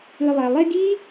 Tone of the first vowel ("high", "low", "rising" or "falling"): low